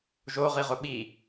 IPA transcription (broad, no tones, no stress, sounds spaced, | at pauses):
ʒ o ʁ i ʁ ʊ ɓ i